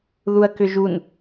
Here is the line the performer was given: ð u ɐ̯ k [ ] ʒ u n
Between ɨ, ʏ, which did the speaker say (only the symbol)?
ʏ